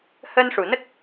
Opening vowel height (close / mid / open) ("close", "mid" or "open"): mid